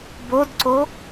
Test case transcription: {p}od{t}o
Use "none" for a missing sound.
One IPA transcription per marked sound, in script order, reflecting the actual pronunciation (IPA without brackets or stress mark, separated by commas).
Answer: b, ǀ